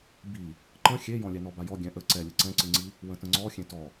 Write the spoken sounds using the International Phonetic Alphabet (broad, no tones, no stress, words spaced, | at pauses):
bi | ǃə̃ xʲejɔ̃ lʲɛnɔbajɔ ɡʲɛ̃ʔə ǀɛlʲə ǀɛ̃ǀɨŋ͡ǀi | wə̃tə̃ŋ͡ǀɔ xʲẽtɔ